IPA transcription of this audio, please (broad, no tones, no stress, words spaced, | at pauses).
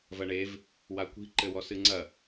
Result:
vɐɳev | wakʷi̤ ǃɘwɔsɨŋ͡ǀɐ